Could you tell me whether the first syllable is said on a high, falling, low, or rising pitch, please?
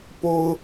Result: high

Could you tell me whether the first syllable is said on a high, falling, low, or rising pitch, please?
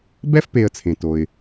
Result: high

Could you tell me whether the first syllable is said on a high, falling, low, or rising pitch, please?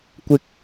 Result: high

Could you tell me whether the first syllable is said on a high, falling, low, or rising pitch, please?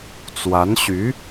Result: rising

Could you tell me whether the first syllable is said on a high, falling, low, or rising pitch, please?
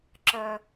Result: low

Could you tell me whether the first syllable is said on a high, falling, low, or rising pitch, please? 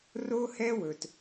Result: high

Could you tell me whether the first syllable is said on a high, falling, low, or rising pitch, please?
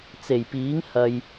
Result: low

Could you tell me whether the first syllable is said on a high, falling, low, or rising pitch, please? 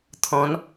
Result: rising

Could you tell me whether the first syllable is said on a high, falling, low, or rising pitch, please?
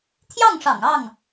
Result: falling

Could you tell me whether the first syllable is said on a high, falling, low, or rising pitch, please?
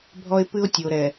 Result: high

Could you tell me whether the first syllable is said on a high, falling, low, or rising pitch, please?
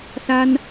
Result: high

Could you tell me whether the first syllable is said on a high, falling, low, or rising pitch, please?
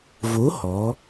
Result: rising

